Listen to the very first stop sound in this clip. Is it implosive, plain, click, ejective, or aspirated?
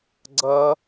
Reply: click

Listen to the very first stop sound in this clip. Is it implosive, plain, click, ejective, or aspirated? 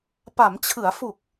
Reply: plain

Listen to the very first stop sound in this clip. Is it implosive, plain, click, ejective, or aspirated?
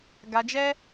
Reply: plain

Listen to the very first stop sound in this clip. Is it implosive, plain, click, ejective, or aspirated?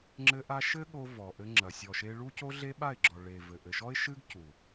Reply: click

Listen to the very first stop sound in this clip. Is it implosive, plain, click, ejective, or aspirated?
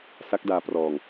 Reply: plain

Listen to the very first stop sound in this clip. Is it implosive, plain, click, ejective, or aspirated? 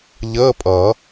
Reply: ejective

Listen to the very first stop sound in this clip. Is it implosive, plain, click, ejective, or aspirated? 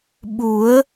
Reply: implosive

